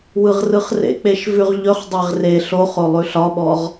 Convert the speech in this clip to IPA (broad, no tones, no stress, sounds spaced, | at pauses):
w ɯ ʁ r ɯ χ r ḛ k͡p e ʃ v ʉ ʁ ʎ ɵ χ dˤ e ʁ r e ɬ o χ o lˠ ʉ ɬ ɒ ɓ ɔ ʁ